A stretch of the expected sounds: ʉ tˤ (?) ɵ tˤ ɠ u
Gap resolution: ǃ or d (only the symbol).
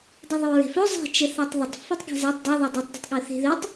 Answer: d